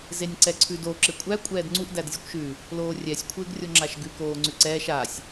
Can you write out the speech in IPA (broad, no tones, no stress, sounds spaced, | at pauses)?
z e nʲ ǀ ɛ ǀʰ ʉ d o ǁ ɪ kʷʼ æ kʷʼ ɛː d ŋ͡ǀ u ʔ d æ d zʲ ɛ kʷ ʃ ʉ | l oː rʲ ɛ sʲ kʷʰ ɪː ɡ rʲ o ŋ͡ǁ a ʃ ɡ ʉ k oː ŋ͡ǀ ʉ ǀ ɛː ʃ a sʲ